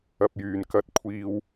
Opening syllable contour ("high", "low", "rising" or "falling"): low